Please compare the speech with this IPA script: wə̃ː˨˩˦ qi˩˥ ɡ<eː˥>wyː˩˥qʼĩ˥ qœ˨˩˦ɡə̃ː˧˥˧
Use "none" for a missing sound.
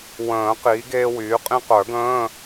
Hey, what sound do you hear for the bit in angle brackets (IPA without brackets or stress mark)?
eː˥